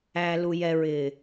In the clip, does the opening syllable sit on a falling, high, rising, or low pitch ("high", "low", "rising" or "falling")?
low